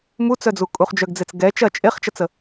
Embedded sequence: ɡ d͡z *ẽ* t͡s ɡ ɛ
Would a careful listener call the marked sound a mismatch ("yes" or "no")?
yes